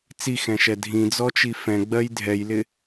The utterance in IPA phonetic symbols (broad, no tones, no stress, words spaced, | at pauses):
t͡sixɛ̃ʃɛ dʱĩd͡zɔt͡ʃi fɛ̃ɡ͡bɜj dʱɛjlɪ